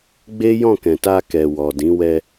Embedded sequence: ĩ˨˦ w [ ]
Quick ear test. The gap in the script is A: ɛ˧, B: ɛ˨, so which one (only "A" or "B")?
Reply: A